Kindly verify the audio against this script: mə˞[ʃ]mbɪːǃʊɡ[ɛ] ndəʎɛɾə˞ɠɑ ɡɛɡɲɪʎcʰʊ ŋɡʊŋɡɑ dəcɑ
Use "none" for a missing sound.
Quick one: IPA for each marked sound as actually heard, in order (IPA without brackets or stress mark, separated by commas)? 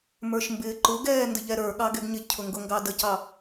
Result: ʃ, ɛː